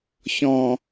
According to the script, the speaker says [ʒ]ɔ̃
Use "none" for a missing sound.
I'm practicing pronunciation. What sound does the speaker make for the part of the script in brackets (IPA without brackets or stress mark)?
ç